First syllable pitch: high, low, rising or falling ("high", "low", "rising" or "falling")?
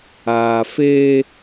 low